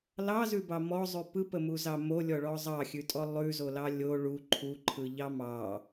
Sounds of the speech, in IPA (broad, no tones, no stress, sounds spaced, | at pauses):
l ɑ z ʉ b ɑ m ɔ zˤ ʉ p ɯ p ə m u z ɑ m o lʲ ɔ ɭ ɔ zˤ ɑ xʲ ʉ tʼ ɔ lˠ ʉ z o l ɑ lʲ o ɭ u ǃʰ u ǃʰ ɯ ʎ ɑ m ɑ